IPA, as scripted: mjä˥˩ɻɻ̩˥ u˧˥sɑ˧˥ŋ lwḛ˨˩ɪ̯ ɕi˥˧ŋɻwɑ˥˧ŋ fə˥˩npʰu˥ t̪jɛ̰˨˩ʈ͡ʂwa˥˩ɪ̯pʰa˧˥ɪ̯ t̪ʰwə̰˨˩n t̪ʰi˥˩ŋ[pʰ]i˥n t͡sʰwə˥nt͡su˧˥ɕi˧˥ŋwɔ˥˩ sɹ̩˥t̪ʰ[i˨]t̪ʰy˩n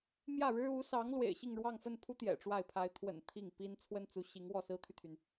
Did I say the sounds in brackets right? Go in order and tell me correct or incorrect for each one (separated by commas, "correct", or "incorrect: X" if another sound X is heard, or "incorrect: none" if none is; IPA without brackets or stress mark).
incorrect: p, incorrect: y˨